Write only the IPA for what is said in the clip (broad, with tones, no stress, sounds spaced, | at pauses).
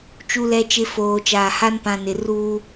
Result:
t͡ʃ u˨ l ɛ˨ t͡ʃ ɪ˨ f oː˨ t͡ʃ aː˨ h a˦ n p ã˨ n ɪ˨ r uː˦